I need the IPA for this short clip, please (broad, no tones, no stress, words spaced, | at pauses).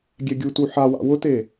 ɡʲɛɡʲutu ħawa̰ wʊte